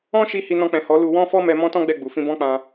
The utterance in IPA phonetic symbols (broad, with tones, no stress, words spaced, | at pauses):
ɔ̃˦ʃi˧ hi˧nɔ̃˧k͡pɛ̃˨ hɔ˨˦lu˧ wɔ̃˦fɔ˦mɛ˧ mɔ̃˦tɔ̃˦ ɡ͡bɛ˦˨ɡ͡bu˨ fĩ˧bɔ̃˦k͡pã˧